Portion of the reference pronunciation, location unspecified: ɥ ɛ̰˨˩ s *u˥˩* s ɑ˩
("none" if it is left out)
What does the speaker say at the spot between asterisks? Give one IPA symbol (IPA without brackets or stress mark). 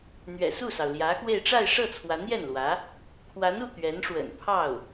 u˥˩